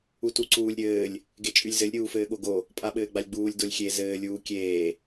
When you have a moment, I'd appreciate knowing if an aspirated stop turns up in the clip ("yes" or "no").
no